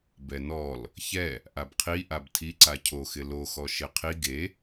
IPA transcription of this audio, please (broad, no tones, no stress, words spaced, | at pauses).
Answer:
bɛnɔl | çɛ | ʔabqʰi ʔabtʰiǀa cʰoxɪ loxɔ ʃeqʰi ɡe